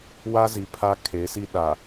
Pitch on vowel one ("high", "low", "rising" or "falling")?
high